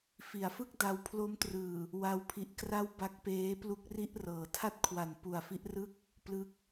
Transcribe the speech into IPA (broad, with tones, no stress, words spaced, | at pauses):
fi˩˦a̯fɯ˥˩k̚ da˦˥w pʰlo˦˥mtrɯː˨˩ | wa˧wpʰi˨˩ʔkra˥˩w ba˦˥k̚peː˦˥plu˦˥k̚ ri˥˩ʔrɤː˩˦ tʰa˥˩t̚kʰwa˨˩n pu˨˩a̯fi˦˥ʔrɯ˥˩k̚ | plɯ˥˩k̚